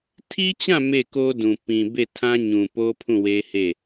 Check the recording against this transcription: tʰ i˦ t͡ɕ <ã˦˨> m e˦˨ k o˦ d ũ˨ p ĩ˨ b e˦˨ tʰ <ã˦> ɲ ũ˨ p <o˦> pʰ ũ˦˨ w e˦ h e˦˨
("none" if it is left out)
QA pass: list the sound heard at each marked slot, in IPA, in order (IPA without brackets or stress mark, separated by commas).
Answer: ã˦˨, ã˦, o˦